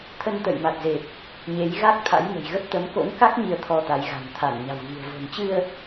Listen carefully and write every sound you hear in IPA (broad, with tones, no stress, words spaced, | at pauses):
t̪ʰə˧nt̪ə̰˧˨jma˨˩t̚ze˨˩p̚ | ɲe˨˦jɣa˦˥k̚ t̪ʰa̰˧˥jŋə̤˨˩jɣə˦˥p̚ t̪ə˨˦mko̰˧˥nka˦˥k̚ ɲi˧ə̯t̪ʰɔ˧t̪a˨˦j ɣa̤˨˩nt̪ʰa˧˩n ɲa̤˨˩wɣi̤˨˩ə̯ vo̤˨˩nt͡ɕɨ˧ə̯